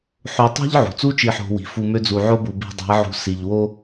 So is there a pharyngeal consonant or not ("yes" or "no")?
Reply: yes